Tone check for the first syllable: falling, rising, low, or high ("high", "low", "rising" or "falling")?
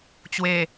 low